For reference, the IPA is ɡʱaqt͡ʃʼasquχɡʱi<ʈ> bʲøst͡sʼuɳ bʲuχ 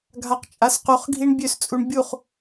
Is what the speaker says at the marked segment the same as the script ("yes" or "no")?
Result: no